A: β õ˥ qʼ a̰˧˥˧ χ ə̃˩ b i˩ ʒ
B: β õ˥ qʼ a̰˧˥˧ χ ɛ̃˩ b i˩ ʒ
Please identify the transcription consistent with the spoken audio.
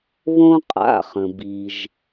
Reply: A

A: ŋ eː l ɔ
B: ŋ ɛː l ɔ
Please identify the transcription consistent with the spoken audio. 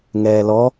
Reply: B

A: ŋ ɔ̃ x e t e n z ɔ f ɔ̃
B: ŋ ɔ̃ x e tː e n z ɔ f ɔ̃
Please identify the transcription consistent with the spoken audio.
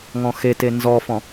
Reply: A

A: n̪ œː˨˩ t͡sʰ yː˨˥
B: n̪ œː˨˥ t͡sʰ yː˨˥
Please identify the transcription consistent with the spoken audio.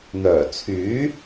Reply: A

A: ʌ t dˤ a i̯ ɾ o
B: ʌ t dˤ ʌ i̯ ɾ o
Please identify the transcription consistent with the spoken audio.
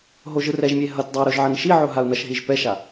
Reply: A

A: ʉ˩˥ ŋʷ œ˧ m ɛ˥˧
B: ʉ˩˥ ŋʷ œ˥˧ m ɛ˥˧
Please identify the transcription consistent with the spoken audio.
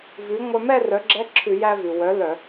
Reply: A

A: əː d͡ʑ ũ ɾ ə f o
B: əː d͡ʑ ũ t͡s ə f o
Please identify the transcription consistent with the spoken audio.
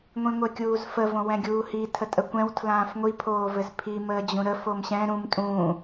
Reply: A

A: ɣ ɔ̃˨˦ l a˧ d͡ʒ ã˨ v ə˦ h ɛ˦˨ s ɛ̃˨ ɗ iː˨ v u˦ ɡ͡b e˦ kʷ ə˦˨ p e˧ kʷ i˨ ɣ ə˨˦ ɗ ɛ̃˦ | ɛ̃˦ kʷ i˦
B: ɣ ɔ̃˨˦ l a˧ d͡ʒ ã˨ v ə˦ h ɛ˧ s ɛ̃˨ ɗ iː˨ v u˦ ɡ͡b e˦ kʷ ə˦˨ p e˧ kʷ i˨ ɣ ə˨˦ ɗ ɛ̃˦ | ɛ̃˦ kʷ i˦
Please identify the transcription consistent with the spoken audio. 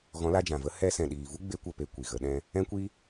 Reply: B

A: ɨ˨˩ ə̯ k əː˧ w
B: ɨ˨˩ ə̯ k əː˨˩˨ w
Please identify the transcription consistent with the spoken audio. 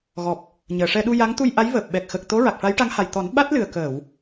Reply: B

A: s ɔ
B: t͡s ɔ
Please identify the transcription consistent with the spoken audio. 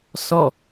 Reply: A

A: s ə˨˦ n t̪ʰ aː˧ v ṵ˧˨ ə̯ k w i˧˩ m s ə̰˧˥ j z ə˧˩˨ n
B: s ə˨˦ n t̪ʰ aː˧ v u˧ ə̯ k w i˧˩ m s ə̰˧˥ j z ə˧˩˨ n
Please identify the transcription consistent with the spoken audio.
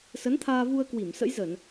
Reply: B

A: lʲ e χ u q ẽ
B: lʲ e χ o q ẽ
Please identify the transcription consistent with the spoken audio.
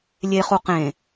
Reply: A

